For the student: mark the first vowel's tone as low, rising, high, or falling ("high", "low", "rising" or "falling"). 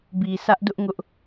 low